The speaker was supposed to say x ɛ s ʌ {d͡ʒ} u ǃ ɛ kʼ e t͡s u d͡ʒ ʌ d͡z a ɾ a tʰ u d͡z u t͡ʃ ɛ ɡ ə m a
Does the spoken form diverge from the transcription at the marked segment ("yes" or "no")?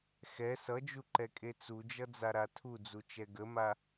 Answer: no